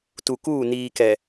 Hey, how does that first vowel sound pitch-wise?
low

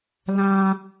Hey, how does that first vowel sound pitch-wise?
high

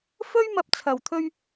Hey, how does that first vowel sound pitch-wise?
high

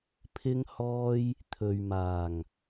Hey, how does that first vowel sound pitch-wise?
high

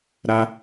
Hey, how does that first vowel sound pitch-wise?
high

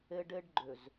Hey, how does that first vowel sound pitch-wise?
high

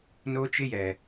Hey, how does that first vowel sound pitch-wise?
high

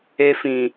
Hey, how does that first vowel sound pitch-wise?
high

